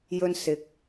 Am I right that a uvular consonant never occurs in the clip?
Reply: yes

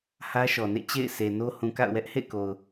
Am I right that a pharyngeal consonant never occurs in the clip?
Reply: yes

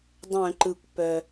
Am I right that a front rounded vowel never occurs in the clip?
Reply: no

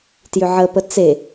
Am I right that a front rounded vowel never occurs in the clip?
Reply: no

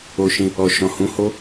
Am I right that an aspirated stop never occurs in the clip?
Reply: yes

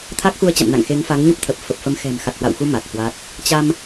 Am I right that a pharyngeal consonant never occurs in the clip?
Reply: yes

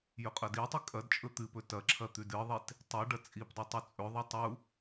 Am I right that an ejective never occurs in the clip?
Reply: no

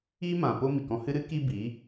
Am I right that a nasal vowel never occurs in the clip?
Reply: no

